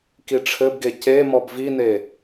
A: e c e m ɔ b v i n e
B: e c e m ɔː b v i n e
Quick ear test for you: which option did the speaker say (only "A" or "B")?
A